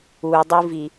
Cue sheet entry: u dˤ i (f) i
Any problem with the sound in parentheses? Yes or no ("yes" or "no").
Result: yes